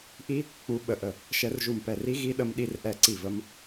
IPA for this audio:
ʔ i˦˥ | k͡p u˦˥ ɓ ə˦˥ ʔ ə˥˩ | ʃ ɛ˦˥ r ʒ u˥˩ m p ɛ˥˩ r i˦˥ ɣ i˦˥ ɗ ə˦˥ m ɗ i˦˥ r ʔ ɛ˥˩ ǀ i˥˩ v ə˦˥ m

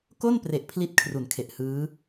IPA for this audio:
k o˥˩ n p r e˨˩ ʔ pʰ l i˥˩ t̚ kʰ r u˩˦ n kʰ e˨˩ ʔ h ɯː˦˥

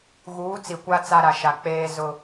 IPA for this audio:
ɣ uː˨˦ t͡s i˨ kʷ a˦ t͡s a˦ ɾ a˨ ʃ a˨ k͡p eː˦ z ʊ˦

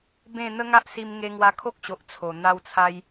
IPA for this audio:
b ẽ˥˧ n̪ ə˦ ŋ a˦ ʔ s i˧ m ŋ e˧ ŋ w a˧ kʰ o˦ k̚ ɕ o˨ ʔ t͡sʰ o˨˩ n̪ a˧ w t͡sʰ a˧ j

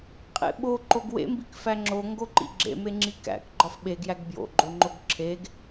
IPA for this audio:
qʼ ḛ ɓ o ǃ o ɡ w ḛ m b i k f æ ŋ͡ǁ o ŋ ɡ o ǃ ḭ ɡ͡ǁ ḛ m e ŋ͡ǁ i k æ̰ k ɡ͡ǃ ɒ f ɓ e ɡ j æ ɡ b j o̰ ɡ͡ǃ o ŋ͡ǃ o ɡ ǁʰ e ɡ

